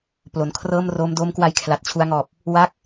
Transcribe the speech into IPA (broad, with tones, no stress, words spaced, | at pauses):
plo˩˦nkʰrɤː˥˩mroː˦˥m doː˦˥mkwa˧j kʰla˨˩t̚t͡ɕʰu˧a̯ŋɔː˨˩p̚ | wa˦˥k̚